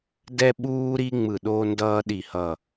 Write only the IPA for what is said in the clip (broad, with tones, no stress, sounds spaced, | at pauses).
d ɛ˥ ɓ uː˥ ɾ i˥ ŋ͡m ɯ˦˨ ɗ oː˥ n d ʌː˥ ɗ i˦˨ h ʌ˦˨